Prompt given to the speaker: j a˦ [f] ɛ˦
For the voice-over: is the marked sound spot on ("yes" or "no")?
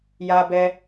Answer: no